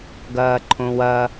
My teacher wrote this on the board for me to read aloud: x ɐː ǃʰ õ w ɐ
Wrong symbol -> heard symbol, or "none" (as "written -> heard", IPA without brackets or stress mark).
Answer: x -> ɡ